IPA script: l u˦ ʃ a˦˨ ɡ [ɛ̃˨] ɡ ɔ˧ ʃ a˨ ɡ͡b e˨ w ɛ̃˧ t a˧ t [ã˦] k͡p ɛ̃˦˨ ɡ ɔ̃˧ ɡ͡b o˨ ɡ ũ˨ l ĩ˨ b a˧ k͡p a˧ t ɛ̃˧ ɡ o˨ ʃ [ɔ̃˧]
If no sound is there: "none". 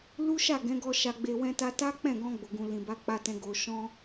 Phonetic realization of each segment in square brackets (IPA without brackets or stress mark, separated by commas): ɛ̃˨˦, a˦, ɔ̃˧